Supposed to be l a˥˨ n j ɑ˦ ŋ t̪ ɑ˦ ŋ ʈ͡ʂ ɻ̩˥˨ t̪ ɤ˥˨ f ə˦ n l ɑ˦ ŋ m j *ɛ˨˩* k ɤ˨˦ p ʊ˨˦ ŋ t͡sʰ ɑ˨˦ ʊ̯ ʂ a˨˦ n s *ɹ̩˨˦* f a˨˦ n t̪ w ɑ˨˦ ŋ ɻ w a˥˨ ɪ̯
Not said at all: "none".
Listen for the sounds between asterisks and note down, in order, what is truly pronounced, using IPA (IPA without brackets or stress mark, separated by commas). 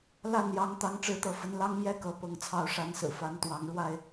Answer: ɛ˦, ɹ̩˨˩